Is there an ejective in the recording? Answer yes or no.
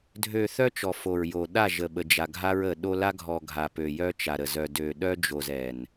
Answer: no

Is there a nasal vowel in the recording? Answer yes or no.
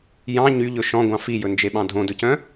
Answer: yes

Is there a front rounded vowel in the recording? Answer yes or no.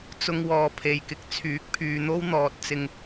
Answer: yes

